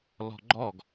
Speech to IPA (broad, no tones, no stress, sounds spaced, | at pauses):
l ɔ̤ ɡ͡ǃ ɔ ɡ